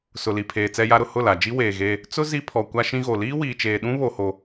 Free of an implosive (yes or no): no